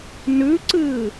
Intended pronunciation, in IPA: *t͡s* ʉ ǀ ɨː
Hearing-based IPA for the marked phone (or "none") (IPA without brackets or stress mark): n